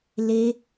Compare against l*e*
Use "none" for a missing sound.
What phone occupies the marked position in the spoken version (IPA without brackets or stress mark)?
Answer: e